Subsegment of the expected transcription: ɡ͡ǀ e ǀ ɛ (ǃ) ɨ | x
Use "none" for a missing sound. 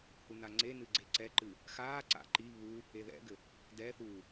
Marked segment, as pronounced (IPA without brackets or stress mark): ǃ